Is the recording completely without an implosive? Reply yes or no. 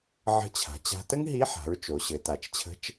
yes